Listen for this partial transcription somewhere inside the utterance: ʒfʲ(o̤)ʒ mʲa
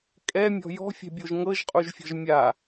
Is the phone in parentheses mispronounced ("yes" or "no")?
yes